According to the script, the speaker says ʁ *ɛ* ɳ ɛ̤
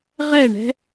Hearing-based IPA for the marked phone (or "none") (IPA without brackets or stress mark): ɛ